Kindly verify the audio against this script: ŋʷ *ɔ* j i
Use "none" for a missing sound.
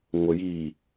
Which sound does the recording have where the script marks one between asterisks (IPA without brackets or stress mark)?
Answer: ə